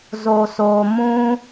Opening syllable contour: low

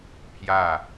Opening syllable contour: falling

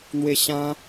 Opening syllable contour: high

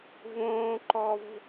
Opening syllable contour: low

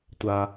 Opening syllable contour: low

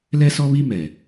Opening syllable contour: high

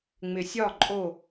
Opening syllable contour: low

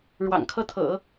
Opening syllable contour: low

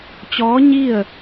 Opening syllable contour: rising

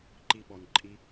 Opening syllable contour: low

